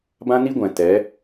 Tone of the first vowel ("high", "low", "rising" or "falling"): high